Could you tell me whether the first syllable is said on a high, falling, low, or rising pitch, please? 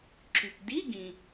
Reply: low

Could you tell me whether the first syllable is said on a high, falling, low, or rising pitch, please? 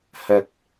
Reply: low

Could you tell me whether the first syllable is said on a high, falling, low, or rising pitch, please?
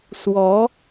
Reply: rising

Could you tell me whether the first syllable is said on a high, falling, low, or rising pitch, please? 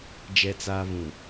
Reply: low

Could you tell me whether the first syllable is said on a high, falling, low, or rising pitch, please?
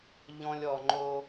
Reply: high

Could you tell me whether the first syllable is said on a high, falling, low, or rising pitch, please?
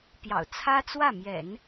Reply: low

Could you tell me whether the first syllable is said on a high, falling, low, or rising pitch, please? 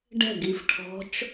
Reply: falling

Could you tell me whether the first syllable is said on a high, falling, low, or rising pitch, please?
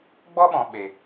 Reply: high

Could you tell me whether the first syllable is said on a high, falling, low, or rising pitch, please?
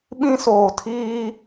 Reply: high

